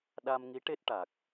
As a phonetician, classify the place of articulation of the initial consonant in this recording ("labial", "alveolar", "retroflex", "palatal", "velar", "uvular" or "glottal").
alveolar